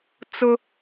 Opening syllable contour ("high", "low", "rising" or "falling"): high